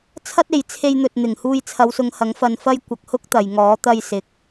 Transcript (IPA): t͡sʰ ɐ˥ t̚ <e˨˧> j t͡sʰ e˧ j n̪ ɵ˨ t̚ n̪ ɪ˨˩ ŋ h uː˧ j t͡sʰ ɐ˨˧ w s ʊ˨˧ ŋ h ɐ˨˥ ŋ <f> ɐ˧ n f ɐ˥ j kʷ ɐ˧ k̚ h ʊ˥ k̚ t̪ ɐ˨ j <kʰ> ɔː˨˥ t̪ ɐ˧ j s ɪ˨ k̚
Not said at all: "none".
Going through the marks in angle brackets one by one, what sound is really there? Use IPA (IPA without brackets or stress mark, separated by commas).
e˨˧, f, ŋ